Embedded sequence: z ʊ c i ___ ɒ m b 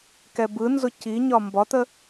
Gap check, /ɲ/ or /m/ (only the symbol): ɲ